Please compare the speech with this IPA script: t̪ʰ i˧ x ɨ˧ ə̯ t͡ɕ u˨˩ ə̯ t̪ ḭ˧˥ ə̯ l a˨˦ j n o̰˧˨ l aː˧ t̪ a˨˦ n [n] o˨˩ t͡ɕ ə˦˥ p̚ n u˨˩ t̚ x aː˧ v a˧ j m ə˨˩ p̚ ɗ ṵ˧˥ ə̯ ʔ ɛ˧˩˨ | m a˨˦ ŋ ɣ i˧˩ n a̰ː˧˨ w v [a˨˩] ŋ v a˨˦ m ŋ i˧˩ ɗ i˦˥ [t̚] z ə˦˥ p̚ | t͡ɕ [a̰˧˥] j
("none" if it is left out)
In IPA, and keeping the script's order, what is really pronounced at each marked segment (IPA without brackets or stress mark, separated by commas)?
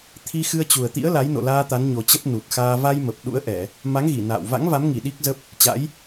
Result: ɲ, a̰˧˥, k̚, a̰˧˥